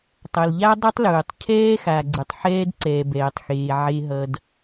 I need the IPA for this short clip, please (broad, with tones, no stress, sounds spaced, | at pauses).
tˤ ʌ˨ l ʎ a˦ dˤ ɯ˦ tˤ l uː˨ tˤ cʰ ɛː˦ x a˨ ɡ͡ǀ ɯ˨ tˤ ħ ɛː˦ d ǀ ɛː˨ b ɛː˨ tˤ x eː˨ ʕ e˦ ɦ ʌ˦ d